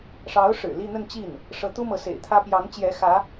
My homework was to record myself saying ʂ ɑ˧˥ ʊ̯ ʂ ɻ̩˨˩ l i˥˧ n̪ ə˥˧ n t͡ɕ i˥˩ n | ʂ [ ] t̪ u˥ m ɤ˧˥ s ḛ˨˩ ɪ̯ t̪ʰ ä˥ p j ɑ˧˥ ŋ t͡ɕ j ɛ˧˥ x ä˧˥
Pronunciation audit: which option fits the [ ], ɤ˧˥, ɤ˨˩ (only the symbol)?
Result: ɤ˧˥